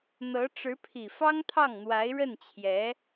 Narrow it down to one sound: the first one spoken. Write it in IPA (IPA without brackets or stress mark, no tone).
n̪